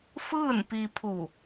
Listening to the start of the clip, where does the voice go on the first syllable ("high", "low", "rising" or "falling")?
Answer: falling